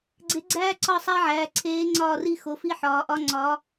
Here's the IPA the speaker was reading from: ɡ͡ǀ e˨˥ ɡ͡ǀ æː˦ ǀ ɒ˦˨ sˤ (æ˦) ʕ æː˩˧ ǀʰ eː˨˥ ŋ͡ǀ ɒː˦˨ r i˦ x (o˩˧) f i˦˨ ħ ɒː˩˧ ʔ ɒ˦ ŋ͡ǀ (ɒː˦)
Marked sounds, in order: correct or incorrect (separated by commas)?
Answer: correct, correct, incorrect